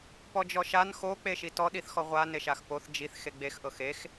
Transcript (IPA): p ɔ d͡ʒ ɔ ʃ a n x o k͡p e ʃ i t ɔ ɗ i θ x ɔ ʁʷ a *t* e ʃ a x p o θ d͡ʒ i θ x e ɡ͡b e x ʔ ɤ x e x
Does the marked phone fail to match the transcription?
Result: yes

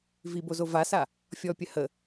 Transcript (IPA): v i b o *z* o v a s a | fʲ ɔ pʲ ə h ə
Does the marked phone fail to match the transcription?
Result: no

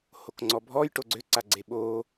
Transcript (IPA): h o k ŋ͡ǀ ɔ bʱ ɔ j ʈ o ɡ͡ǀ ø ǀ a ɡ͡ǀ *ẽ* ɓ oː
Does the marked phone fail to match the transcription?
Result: yes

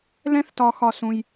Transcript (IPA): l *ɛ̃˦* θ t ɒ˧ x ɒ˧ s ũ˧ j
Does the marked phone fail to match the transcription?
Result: no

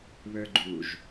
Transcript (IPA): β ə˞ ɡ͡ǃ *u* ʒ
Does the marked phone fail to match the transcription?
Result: no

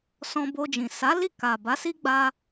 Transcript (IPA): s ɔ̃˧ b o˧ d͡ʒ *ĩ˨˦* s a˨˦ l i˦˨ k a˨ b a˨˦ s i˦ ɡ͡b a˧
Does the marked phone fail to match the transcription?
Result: yes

